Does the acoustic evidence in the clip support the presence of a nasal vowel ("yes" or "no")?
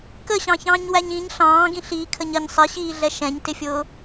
yes